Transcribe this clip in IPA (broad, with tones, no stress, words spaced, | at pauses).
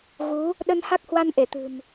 ɣu˨˦ | ɗə˧nha˦˥k̚hwa˧n ʔe˧˩t̪ɨ̤˨˩m